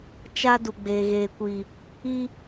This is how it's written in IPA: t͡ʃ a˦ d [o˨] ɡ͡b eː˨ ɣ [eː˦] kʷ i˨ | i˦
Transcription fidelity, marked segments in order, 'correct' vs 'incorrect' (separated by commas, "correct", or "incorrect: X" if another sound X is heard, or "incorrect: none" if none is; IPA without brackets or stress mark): incorrect: u˨, incorrect: eː˨